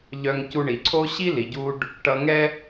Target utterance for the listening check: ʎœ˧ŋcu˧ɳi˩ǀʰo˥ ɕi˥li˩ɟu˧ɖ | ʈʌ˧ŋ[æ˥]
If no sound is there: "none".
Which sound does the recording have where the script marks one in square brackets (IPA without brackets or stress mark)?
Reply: ɛ˥